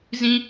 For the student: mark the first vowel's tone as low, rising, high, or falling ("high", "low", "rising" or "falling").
high